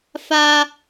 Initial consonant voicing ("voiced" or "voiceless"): voiceless